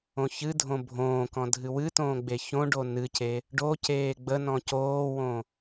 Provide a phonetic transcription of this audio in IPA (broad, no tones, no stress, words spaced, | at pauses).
õçɨdʱõ bʱõː kɔ̃dʱɨwɨtõː ɡ͡beçõɖo nɨce | ɖoceː ɡ͡bənɔ̃ coːwõ